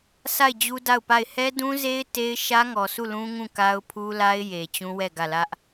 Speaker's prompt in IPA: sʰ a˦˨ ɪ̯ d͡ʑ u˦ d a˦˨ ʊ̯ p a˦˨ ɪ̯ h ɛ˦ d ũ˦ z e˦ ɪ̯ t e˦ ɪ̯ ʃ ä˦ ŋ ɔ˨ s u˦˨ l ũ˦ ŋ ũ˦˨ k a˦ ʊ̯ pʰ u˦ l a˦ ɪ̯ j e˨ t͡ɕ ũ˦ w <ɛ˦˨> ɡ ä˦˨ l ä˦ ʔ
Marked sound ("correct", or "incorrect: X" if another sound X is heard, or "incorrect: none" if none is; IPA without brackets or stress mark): correct